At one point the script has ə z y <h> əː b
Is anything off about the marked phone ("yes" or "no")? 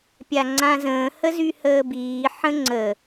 no